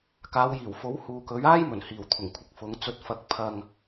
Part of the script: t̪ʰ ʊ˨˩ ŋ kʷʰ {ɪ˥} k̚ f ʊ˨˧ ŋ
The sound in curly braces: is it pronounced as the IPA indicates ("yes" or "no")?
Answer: no